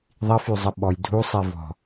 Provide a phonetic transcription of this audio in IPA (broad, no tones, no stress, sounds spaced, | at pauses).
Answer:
ðˤ i f y zˤ ə ɓ ɔ j dʱ u sˤ i v ɔ̤